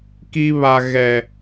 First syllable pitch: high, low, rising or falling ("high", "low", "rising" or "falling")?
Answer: high